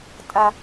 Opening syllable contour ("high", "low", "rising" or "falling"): high